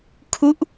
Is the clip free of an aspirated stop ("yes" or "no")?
no